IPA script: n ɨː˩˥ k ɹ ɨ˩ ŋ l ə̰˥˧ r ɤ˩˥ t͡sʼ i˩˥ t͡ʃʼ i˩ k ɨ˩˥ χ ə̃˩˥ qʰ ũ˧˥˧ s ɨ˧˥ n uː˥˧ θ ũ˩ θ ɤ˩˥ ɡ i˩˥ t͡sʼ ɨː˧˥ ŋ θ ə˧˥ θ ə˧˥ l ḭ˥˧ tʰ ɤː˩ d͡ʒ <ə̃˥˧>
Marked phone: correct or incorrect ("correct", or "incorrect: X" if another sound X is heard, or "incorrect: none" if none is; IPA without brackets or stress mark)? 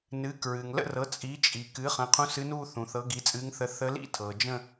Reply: correct